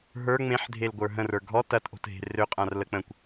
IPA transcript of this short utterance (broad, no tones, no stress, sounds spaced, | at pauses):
ɦ ə˞ ŋ͡m ẽ ħ dʱ e l ɡʷ ə˞ ɦ ə̃ r ə˞ ɡʱ ɔ t ɐ t ʔ o̤ t ɦ e̤ r ø qʼ ã r l ə k͡p ə̃ kʷ